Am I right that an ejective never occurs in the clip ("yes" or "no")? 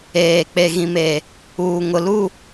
yes